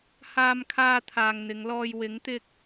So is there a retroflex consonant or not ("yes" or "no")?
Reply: no